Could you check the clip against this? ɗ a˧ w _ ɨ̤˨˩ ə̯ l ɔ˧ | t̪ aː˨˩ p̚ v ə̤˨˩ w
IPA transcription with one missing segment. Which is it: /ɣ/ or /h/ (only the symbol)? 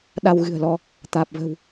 ɣ